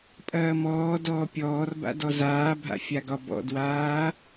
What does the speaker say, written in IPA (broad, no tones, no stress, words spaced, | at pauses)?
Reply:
pʼɐːmɔːdɔː pʲɔːrba̰ dɔzaːbʱa̰ fʲaɡɒbɔ̰dwaː